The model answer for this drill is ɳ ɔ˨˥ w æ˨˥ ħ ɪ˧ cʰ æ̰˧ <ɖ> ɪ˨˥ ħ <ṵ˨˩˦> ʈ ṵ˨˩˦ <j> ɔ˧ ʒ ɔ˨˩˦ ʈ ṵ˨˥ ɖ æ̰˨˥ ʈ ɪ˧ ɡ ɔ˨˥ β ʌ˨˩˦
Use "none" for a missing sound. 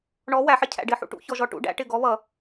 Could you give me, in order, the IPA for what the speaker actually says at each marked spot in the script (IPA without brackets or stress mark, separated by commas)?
ɖ, ṵ˧, ç